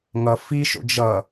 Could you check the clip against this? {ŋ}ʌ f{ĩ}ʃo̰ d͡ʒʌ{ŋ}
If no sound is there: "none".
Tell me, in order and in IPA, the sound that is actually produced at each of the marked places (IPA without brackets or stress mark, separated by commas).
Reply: ŋ, i, none